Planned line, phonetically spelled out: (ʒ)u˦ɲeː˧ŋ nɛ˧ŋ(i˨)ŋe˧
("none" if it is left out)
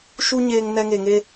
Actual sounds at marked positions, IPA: ʃ, e˨

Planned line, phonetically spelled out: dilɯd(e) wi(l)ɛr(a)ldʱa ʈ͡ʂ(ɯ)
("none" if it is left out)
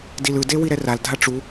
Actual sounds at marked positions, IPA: e, ɾ, a, u

